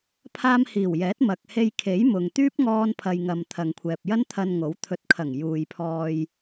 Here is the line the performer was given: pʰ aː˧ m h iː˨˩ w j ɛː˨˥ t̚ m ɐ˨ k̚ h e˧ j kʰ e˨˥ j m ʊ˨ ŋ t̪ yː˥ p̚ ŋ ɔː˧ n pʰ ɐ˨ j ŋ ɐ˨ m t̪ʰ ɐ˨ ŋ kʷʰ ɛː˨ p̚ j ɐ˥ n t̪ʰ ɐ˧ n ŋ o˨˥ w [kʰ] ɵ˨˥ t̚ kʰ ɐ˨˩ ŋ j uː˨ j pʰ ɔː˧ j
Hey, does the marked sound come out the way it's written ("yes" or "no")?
no